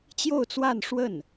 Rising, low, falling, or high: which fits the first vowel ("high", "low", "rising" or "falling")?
falling